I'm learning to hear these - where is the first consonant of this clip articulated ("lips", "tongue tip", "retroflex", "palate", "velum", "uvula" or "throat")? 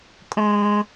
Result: velum